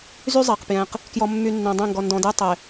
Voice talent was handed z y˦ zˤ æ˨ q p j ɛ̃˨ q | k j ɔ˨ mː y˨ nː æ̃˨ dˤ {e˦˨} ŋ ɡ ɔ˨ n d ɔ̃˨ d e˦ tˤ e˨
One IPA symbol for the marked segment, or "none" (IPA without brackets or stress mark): ẽ˦˨